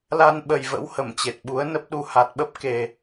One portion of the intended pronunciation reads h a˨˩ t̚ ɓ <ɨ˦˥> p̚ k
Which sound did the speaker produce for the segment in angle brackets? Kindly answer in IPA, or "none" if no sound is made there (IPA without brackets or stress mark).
ə˦˥